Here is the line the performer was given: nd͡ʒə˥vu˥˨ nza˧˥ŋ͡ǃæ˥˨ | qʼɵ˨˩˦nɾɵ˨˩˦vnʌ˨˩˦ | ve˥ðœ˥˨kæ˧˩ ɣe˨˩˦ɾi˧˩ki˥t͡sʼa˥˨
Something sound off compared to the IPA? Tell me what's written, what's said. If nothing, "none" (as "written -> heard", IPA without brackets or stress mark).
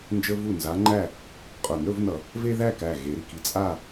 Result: œ˥˨ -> æ˥˨